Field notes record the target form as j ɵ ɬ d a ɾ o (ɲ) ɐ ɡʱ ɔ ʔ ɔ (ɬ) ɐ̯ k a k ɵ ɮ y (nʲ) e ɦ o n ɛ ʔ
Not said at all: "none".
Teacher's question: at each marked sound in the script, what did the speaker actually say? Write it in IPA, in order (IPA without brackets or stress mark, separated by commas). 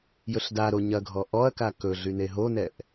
ɲ, none, n